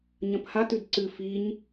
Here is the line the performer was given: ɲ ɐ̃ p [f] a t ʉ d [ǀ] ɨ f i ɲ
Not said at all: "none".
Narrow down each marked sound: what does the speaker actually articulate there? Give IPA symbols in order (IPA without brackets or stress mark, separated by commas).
h, ǀ